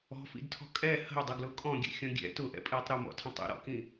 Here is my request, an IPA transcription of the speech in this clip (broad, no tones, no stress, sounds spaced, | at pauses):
ɔ̤ f ḭ d tʰ ɔ̤ kʼ ɛ h ə̤ u̯ dˤ ə ɡ l ʊ kʼ ɔ̃ ɡʲ ɛ̰ xʲ ɔ̃ ɡʲ ɛ̰ t ʊ ʔ ɛ̰ pʼ iː tˤ ɾ ʊ m ɔ̰ tʰ ə̃ tˤ ḭ ɾ ɔ̰ k ĩ